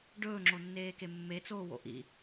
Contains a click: yes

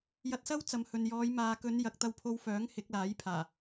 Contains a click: no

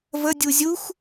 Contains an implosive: no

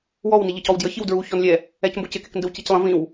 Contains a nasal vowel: yes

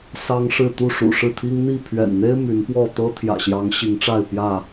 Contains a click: no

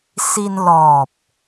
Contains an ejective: no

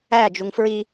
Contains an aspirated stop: no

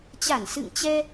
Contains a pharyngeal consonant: no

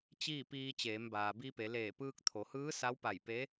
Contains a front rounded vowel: no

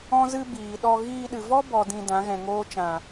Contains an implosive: yes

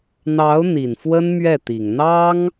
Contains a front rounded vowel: no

